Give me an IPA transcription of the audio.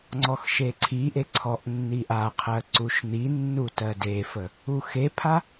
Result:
ŋ͡ǀ ɔ x ʃ e ǀʰ i ʔ e ǀʰ ɔ ʔ nː i ʔ a qʰ ɜ ǀ u ʃ n̪ i nː u t ɜ d e f ə | u x e pʰ a

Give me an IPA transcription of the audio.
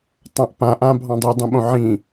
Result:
tˤ ã ʔ p ã ʔ ã bʱ ɑ̃ dˤ i dˤ ũ ɓ õ ʕ ĩ

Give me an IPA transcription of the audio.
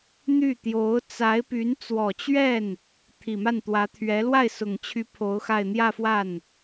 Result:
n̪ y˥˩ t̪ j o˧˥ ʊ̯ t͡s a˧˥ ɪ̯ p y˧˥ n t͡s w ɔ˨˩ t͡ɕ ɥ ɛ˥˩ n | t̪ʰ i˨˩ m a˥˩ n t̪ w ä˧˥ t̪ʰ ɥ ɛ˧˥ l w a˥˩ ɪ̯ s ʊ˨˩ ŋ t͡ɕʰ y˧˥ pʰ o˧˥ ʊ̯ x a˥˧ ɪ̯ n̪ j ä˥˧ f w a˥˩ n

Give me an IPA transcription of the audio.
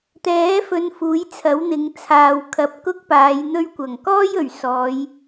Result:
t̪ ɛː˨˥ f ɵ˨˧ n f uː˨˥ j t͡sʰ ɐ˨˥ w n̪ ɪ˨˧ ŋ t͡sʰ aː˨ w kʰ ɐ˨˥ p̚ k ʊ˥ k̚ p aː˨˧ j n̪ ɵ˧ ɥ kʷ ɐ˨˩ ŋ k ɔː˥ j ɵ˨˩ ɥ s ɔː˨˧ j

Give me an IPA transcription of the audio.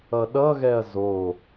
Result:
ʌ ɗ ʌ ɣ ɛ ɐ̯ z o

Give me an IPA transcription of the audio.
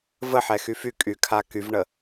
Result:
v ə ħ ɛ x y f y kʼ y kʰ a k y v ɳ ə

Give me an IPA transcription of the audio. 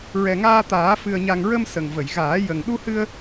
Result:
ɹ ɛ˨˩ ŋ aː˧ t̪ aː˨˩˦ f ɨ˨˩ ə̯ ɲ a˨˩ ŋ ɹ ə˧ m s ə˨˩ ŋ v ə˨˩˨ j ɣ aː˨˩˦ j ə˨˩ ŋ ɗ u˧ h ɨ˧ ə̯

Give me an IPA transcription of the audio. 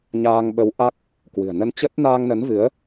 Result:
ɲ aː˧ ŋ ɓ ə˨˦ w ʔ a˦˥ k̚ | k w ɨ̤˨˩ ə̯ n ə˧ n t͡ɕ ə˦˥ t̚ n aː˧ ŋ n ə˨˦ n v ɨ˨˦ ə̯

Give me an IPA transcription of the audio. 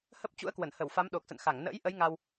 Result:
h ə˦˥ p̚ t͡ɕ ṵ˧˥ ə̯ k w ə˧˩ n h ə˧˩ w f a˨˦ m ɗ o˨˩ k̚ s ə̰˧˨ n x a˧˩ ŋ n ə̰ː˧˥ j ʔ ə˨˦ j ŋ a˧ w

